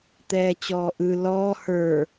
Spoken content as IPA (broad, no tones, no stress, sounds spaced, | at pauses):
t̪ ɛː t͡ɕ ɔː ʔ ɯ l ɔː h ə˞